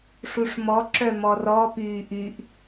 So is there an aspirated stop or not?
no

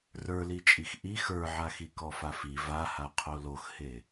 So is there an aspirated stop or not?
yes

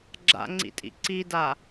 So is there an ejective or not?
yes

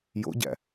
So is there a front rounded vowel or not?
no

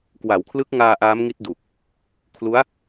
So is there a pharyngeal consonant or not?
no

